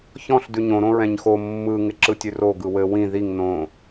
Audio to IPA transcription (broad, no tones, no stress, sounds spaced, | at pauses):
ç ɔ̃ ɬ d ʉ ɲ õ ɾ õ ɹ ɛ̃ ɲ x o mː ɯ ŋ ɪ ǁ ɯ tʲ ʉ r o ɡ ɯ w ɘ w ĩ ð i ŋ n õ